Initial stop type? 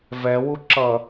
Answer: click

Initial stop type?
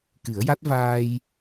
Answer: plain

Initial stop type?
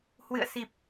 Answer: plain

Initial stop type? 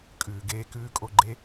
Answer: ejective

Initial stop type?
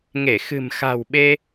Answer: implosive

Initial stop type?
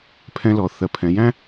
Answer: aspirated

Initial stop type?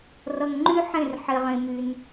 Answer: click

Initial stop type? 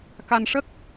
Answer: plain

